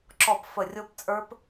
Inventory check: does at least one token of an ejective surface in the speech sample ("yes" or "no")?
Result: yes